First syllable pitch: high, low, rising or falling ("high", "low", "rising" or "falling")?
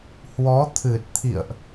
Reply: rising